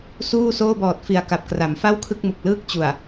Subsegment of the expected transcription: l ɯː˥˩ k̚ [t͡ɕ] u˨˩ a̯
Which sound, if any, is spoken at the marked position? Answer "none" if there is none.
t͡ɕ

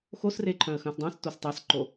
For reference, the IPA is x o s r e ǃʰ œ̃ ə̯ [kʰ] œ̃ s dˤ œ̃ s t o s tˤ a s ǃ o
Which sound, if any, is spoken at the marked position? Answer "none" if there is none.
x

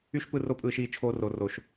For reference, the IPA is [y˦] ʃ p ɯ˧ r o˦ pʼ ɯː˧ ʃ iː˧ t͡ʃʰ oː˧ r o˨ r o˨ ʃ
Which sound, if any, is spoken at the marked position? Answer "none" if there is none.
y˦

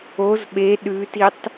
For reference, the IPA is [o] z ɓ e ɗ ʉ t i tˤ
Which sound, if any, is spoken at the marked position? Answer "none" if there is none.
o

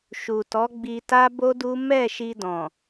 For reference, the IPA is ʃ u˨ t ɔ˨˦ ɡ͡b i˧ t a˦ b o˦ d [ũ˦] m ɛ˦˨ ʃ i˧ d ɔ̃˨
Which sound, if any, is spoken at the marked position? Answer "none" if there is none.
u˦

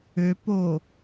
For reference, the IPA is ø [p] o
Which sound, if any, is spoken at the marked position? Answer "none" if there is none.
p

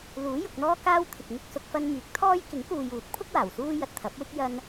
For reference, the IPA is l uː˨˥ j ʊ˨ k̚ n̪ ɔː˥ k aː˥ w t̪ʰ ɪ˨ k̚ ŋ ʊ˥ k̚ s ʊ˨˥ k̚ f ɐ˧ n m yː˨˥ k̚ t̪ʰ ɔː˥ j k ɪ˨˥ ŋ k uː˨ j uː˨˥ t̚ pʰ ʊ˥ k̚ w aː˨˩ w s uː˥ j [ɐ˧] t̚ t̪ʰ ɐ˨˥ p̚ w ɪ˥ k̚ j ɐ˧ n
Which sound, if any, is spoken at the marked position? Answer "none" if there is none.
ɐ˨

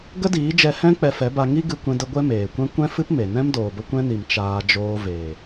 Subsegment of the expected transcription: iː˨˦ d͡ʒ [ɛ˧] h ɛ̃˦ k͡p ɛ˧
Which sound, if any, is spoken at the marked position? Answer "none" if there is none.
ɛ˧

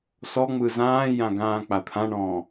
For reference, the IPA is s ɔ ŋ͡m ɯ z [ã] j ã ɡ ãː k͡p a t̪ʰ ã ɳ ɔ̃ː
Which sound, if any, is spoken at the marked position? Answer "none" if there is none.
ãː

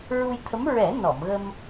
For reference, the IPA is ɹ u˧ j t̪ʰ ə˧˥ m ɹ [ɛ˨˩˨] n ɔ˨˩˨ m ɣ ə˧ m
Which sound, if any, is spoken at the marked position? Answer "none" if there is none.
ɛ˨˩˦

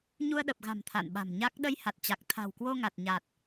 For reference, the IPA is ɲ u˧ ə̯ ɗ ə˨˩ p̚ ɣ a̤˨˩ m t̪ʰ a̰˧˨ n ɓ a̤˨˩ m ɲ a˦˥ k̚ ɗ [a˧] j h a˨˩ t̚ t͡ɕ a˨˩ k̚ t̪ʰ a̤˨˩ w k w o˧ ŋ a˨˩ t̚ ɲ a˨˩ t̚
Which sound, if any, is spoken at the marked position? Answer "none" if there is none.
ə˧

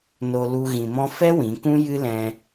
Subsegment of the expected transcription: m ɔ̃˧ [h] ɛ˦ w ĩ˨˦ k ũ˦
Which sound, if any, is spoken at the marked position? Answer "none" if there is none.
f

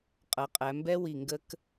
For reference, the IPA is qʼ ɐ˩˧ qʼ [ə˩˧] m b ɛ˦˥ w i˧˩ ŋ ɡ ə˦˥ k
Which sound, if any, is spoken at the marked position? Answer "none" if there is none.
æ˩˧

